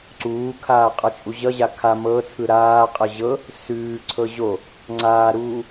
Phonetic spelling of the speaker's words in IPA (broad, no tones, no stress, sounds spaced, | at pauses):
ǀ uː kʰ aː qʼ ʌ t͡ʃʼ u ʑ ʌ ʑ a kʰ a m ɤ t͡sʰ ɯ ɾ aː qʼ ɤ ʑ ɤ | s ʉː ǀʰ ɤ ʑ o | ŋ͡ǀ aː ɾ uː